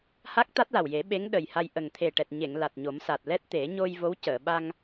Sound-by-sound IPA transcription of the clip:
h a˦˥ k̚ t̪ a˦˥ t̚ l a˨˩ w j e˨˩˦ ɓ e˧˥ ŋ ɗ ə˨˩ j h a˧ j ʔ ə˨˩ ŋ t̪ʰ e˨˩ ʈ ɛ˨˩ t̚ ɲ e˨˩˨ ŋ l a˨˩ t̚ ɲ o˨˩˦ m s a˨˩ t̚ l ɛ˦˥ t̚ t̪ e˨˩˦ ɲ o˧ j v o˧˥ w c əː˨˩˨ ɓ a˧ ŋ

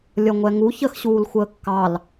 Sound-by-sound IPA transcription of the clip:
lʲ ʌ ŋʷ ɛ ŋ u ç ə x ɕ uː l xʷ əː kː ɑ l

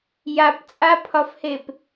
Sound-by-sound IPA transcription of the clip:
j a p t͡sʼ a pʰ ɒ f h e p

